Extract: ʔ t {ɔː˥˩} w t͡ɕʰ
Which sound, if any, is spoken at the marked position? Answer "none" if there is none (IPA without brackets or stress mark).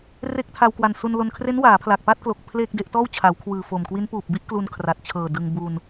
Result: ɔː˥˩